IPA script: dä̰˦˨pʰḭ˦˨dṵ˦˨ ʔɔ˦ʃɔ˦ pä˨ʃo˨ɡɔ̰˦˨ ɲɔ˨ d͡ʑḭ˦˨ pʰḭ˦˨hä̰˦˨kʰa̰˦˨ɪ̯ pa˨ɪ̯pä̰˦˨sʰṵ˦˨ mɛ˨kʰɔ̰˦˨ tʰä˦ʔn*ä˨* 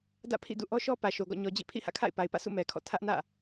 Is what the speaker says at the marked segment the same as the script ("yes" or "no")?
no